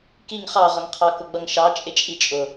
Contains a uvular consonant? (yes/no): yes